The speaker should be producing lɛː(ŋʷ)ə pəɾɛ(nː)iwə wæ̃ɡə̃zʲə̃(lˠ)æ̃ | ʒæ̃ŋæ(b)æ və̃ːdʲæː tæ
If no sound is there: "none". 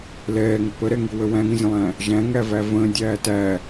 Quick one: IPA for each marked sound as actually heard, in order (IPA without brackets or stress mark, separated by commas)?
ŋ, ŋ, lˠ, v